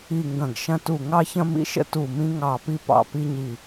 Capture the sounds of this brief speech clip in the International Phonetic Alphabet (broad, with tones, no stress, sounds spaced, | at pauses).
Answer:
i˧˩ ŋ ɡ ɐ̃˧˩ ɡ ʃ ɐ̃˧ t u˧˩ ŋ ɑ˧ ç ɐ̃˧ m ḭ˧˩ ʃ ə̰˧ t u˧˩ m ĩ˧ ŋ ɑ˧˩ p i˧ p ɑ̰˧˩ p i˧ ɲ i˧˩